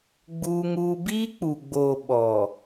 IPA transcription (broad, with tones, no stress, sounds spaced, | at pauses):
ɡ͡b uː˦ ŋ uː˦ b iː˦ k͡p u˨ ɡ͡b oː˨ ɓ ɔ˨